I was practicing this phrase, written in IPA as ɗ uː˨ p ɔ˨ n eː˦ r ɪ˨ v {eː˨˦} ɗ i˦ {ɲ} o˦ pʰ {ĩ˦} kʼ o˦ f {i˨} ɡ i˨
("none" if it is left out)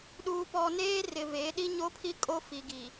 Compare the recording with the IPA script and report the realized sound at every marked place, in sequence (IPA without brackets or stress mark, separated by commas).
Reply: eː˨˦, ɲ, i˦, i˨